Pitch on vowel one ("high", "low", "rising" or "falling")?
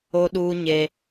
high